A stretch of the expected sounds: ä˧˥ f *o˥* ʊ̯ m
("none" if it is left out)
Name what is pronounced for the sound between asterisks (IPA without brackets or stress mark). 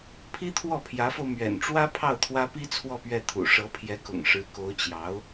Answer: o˧